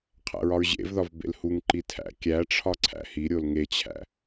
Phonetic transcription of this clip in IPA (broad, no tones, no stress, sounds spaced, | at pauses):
qʰ æ̰ ɹ ɒ ɹ ʑ ḛ v ð ɒ v b ḛ l h u ŋ ǃ i tʰ æ̰ kʲ æ ʈ͡ʂʰ ɒ ǀʰ æ̰ h i ɾʲ o l ŋ e t͡ɕʰ æ̰